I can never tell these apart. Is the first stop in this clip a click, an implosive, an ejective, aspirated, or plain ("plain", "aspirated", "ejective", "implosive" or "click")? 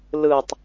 plain